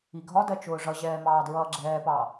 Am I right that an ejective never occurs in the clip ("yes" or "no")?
yes